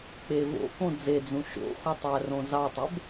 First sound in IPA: k͡p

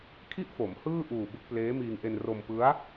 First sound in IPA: kʰ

